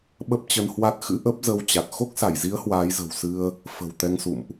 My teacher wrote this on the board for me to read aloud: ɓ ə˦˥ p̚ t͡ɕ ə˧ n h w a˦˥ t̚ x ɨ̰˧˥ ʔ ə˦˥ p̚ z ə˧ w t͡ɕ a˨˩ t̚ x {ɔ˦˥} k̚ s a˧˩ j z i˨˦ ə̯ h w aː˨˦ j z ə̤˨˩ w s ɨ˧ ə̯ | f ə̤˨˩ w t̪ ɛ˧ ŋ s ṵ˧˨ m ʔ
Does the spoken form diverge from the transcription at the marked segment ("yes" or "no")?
yes